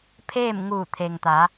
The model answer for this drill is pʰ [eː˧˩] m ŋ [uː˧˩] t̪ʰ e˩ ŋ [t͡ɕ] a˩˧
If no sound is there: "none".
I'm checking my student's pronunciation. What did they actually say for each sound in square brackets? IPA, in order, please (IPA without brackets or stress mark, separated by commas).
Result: eː˥˨, uː˧˩, t̪